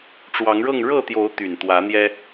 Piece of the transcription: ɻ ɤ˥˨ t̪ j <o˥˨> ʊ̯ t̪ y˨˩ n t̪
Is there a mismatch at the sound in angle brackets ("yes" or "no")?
yes